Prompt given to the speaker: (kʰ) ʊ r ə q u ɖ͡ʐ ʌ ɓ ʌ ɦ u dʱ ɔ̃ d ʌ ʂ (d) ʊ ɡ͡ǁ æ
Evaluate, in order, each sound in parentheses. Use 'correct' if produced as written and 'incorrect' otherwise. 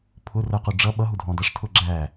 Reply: incorrect, incorrect

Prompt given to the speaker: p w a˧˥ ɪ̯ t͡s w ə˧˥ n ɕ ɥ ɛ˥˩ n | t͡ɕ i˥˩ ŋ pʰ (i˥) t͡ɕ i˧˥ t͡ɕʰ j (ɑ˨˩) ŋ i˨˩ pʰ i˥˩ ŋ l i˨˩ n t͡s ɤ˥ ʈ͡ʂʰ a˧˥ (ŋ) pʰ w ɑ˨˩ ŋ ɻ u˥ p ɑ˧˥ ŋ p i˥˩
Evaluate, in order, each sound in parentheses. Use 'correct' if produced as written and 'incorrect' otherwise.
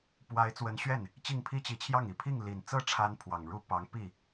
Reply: correct, incorrect, incorrect

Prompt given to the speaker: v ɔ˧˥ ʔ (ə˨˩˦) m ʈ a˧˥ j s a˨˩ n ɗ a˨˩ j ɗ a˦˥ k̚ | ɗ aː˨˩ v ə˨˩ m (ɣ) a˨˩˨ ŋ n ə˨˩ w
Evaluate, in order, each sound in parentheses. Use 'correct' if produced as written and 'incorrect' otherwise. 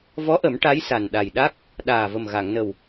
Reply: correct, correct

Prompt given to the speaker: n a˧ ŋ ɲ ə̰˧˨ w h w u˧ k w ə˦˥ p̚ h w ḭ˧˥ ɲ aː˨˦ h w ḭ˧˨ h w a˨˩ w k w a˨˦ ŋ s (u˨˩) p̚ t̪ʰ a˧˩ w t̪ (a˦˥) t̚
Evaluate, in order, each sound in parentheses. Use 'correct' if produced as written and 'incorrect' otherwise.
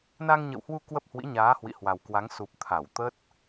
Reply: correct, incorrect

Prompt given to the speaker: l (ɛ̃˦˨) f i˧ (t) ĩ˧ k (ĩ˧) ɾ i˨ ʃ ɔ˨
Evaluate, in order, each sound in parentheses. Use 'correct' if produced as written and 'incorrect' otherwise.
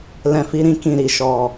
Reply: incorrect, incorrect, incorrect

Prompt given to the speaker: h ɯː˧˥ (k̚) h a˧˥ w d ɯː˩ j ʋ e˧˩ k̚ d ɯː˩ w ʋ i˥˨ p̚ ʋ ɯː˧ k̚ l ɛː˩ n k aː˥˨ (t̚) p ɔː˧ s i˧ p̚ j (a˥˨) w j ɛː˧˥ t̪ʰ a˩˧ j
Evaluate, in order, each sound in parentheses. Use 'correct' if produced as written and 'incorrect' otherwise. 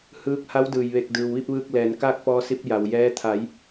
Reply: correct, incorrect, incorrect

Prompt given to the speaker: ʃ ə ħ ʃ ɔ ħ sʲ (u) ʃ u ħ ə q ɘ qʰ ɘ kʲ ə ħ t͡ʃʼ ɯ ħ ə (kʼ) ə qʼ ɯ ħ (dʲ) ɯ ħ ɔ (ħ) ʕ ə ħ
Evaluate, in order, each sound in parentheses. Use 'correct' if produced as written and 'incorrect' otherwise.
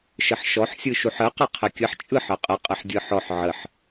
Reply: incorrect, incorrect, correct, correct

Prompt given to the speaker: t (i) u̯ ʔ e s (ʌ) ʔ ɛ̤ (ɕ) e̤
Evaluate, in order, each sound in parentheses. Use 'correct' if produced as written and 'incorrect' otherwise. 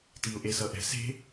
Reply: correct, correct, incorrect

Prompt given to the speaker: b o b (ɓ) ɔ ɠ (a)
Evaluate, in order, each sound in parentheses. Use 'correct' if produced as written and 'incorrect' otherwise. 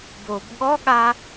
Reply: incorrect, correct

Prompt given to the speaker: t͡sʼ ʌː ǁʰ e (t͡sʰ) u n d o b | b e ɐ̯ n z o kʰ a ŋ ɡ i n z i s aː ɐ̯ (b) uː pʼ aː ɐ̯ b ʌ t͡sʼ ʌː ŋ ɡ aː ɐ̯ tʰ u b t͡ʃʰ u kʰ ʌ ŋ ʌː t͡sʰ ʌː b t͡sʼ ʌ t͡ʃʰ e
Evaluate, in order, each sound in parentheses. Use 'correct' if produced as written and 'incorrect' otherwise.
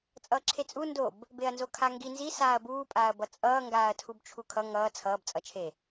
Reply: incorrect, correct

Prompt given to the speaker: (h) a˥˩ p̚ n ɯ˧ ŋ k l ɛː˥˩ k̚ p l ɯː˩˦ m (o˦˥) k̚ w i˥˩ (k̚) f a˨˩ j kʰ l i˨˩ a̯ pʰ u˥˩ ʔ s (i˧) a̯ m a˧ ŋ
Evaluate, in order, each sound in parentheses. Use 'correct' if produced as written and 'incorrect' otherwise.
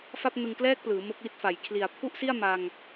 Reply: incorrect, correct, incorrect, incorrect

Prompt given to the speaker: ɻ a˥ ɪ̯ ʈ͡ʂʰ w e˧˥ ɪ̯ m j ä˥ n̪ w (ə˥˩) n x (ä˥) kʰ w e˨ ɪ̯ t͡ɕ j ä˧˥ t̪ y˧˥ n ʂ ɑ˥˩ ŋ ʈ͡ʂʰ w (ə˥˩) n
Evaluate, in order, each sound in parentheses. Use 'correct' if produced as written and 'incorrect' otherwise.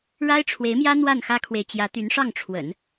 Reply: incorrect, correct, incorrect

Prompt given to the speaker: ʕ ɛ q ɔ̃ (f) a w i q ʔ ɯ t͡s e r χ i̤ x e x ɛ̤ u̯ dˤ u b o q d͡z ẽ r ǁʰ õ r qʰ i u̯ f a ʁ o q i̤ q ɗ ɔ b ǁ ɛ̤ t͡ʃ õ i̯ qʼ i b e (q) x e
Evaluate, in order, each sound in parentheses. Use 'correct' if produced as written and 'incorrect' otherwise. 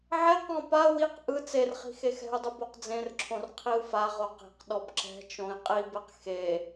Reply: incorrect, correct

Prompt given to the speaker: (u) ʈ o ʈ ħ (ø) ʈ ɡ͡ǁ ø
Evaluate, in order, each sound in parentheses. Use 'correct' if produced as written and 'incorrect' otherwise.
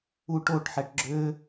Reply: correct, incorrect

